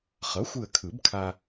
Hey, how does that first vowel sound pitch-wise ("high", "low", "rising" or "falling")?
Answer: rising